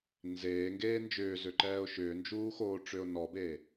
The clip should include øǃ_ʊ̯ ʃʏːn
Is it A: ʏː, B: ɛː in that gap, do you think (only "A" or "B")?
B